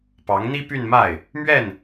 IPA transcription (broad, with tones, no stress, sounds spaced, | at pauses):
p ɑ˧˥ ŋ n̪ i˥ p y˥˧ n m a˥˩ ɪ̯ | m ɥ ɛ˥˩ n